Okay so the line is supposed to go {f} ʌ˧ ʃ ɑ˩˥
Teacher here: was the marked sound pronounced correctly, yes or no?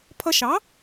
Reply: no